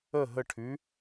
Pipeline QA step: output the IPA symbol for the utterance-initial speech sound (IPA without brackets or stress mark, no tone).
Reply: ə